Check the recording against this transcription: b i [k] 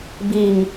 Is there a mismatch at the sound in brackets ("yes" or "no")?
yes